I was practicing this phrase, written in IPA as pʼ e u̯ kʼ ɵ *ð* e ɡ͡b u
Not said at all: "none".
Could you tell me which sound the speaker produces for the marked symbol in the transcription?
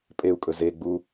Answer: z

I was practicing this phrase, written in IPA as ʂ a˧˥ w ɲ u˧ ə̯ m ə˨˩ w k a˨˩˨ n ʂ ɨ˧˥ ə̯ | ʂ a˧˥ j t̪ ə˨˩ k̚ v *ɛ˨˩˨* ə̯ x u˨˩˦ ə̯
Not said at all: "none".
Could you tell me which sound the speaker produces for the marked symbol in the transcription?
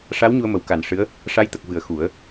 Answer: ɨ˨˩˨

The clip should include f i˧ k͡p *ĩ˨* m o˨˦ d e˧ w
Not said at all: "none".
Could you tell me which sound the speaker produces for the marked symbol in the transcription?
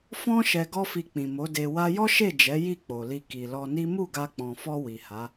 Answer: ĩ˨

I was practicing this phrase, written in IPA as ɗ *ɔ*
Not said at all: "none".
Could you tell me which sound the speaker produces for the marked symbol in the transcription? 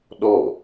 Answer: ɔ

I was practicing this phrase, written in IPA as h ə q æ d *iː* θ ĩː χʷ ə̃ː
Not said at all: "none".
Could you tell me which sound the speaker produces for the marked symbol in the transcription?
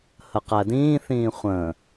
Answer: ĩː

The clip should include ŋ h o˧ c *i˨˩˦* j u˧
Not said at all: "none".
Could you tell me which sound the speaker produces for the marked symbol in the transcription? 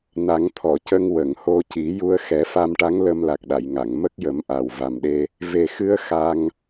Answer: i˨˩˦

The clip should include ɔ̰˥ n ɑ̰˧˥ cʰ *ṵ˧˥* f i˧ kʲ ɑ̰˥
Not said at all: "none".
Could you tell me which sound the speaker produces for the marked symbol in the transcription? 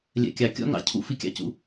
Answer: ṵ˥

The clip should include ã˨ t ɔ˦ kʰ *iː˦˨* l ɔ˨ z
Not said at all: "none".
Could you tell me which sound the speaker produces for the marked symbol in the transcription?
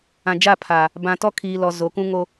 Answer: iː˨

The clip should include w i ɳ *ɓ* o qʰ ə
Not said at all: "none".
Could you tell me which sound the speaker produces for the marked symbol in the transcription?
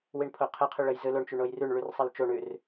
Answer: pʰ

